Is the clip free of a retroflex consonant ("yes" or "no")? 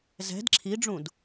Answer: no